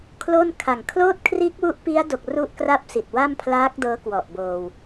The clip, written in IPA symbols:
kʰ l o˥˩ n kʰ a˨˩ ŋ kʰ l oː˥˩ t̚ kʰ r iː˦˥ k̚ w u˦˥ ʔ p i˦˥ a̯ d o˨˩ k̚ r u˥˩ ʔ k r a˥˩ p̚ s i˨˩ t̚ w a˥˩ m pʰ l aː˦˥ k̚ d ɤː˦˥ k w ɔ˨˩ ʔ b oː˧ w

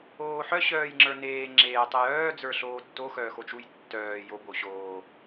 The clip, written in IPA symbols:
oː ħ œ ɕ œː j ŋ͡ǁ ə˞ n eː ŋ͡ǁ eː tˤ e j œː d͡z ə˞ ɬ oː tː o x œː x o t͡ʃ u j tː œː j o b o ɕ oː

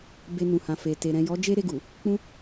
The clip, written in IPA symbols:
b e˧ n ũ˨ h ã˨ f e˨ t e˨ ɾ ɛ̃˨ j ɔ˨˦ d͡ʒ e˦ ɾ e˦˨ ɡ u˨ | k͡p ũ˧

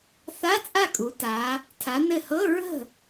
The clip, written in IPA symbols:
θ a˧˥˧ t͡sʼ a˥˩ kʼ u˩˧ t a˩˧ | tʰ a˩˧ n ɘ˧˩ h ɤ˧˥˧ ɹ ə̤˥˩

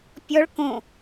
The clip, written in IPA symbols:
pʲ ɔ ɭ k õ

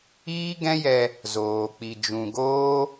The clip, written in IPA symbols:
iː˦ ɡ ɛ̃˦ j ɛ˧ | z oː˨ k͡p i˨ d͡ʒ ũ˨ ɡ oː˦

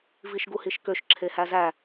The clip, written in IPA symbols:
v i ʃ ɡ u h i ʃ k ø ʃ ǁʰ e h æ z æ

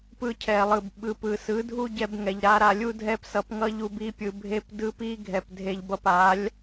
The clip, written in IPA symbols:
p ɯ˧ cʰ ɛ˨ lˠ ɯ˨ b ɓ ɯ˨ p ɯ˨ s ɯ˨˦ dʱ u˦ ɟ ɛ˧ b ŋ ɛ˨ ʎ ɾ a˧ ɾ a˨ lʲ u˦ dʱ ɛ˦ p s ʌ˧ p ŋ ʌ˦ ʎ u˧ b i˧ pʲ ɯ˨ bʱ e˧ p d ɯ˦ p i˦ ɡʱ ɛ˨ p dʱ e˧ ʎ b ʌ˧ p a˨˦ lʲ

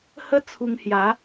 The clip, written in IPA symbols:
h ə˦ t͡sʰ u˧ ŋ h j a˨˦

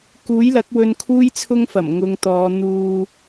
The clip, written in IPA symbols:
k uː˨˥ j l ɐ˨˥ k̚ w ɵ˧ n kʰ uː˥ j t͡sʰ ʊ˥ ŋ f ɐ˨˩ m ŋ ʊ˧ ŋ t̪ ɔː˨˧ n̪ uː˨

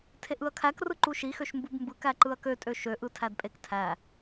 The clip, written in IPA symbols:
tʰ e ʔ ɯ ɐ̯ kʰ æ k r ɯ ǃ u ʃ i x ø ʃ m b u b m b ɯ k æ ǃ ɯ ɐ̯ k ø tʼ ø ʃ ø ʔ ɯ tʰ æ d pʼ e k tʰ æ

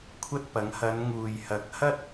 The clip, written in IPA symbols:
kʷʰ ɐ˥ t̚ p ɐ˨˥ ŋ h ɐ˨˧ n ŋ uː˨ j h ɐ˨˥ k̚ h ɐ˥ t̚

